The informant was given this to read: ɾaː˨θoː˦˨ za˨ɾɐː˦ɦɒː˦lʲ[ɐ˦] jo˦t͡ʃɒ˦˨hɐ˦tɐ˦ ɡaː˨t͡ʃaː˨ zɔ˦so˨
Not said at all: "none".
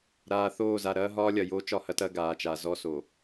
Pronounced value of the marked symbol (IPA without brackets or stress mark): ɐ˨